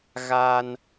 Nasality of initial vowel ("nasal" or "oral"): oral